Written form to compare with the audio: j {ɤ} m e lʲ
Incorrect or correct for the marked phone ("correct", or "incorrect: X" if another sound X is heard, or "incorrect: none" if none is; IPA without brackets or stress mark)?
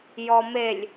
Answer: incorrect: ɔ